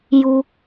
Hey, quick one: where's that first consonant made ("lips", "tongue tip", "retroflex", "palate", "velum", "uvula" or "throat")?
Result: palate